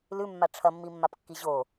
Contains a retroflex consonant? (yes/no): yes